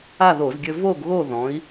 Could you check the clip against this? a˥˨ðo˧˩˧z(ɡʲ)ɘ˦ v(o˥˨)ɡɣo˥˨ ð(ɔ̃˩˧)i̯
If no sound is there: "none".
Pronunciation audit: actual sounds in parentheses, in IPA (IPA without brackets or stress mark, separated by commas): ɡʲ, o˥˨, ɔ̃˩˧